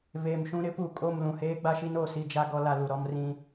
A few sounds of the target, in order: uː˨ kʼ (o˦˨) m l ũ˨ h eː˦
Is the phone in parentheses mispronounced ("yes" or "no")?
no